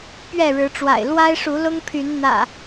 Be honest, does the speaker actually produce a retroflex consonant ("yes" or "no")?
yes